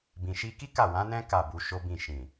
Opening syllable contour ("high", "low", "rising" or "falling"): low